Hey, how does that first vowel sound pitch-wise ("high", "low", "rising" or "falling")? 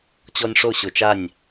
high